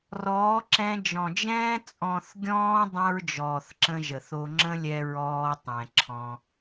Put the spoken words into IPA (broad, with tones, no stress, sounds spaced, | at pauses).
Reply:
r ɔː˨˦ ǁ ɛ̃˧ d͡ʒ ɔ̃˨ d͡ʒ ɛ̃ː˧ t͡sʼ ɔ̃˨ θ ɡʲ ɔ̃ː˧ dˤ ɛ̃˦ ɹ d͡ʒ ɔː˨ θ ǁ ə̃˧ ʒ ə˨ θ o˧ ŋ͡ǁ ə̃˦ lʲ ɛ˧ ɹ ɔː˧ tˤ ɛ̃˨ ǁʰ ɔ̃˧